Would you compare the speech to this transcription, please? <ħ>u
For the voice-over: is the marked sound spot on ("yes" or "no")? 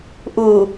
no